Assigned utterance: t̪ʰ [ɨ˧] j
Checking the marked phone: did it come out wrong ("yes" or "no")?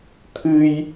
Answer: no